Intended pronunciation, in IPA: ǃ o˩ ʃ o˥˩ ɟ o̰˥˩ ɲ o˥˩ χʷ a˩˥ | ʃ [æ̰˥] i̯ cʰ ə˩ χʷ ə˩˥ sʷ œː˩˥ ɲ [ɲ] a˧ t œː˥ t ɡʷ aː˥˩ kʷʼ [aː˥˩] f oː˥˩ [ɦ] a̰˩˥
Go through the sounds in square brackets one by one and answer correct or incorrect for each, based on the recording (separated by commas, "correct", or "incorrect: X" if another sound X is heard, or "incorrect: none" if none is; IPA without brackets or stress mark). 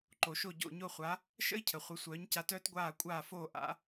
incorrect: ə̰˥, incorrect: c, correct, incorrect: ʔ